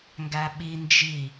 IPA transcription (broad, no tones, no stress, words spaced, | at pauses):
ŋɡæɓi nd͡ʒi